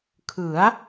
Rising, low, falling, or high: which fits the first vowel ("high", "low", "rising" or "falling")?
rising